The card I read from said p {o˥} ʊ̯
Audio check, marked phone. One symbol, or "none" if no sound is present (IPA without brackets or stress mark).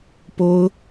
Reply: o˥